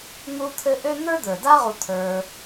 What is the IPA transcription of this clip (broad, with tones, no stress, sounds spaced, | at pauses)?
n̪ u˦ t̪ʰ ɘ˦ ʔ ø˥ n̪ ə˞˥ d̪ ə˞˩ d a˥ ʁ u˨ t̪ʰ ə˞˨